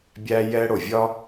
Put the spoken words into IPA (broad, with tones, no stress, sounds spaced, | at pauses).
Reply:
bʲ æ˥ j ɛ˥ ɽ o˩ vʲ ɒ˥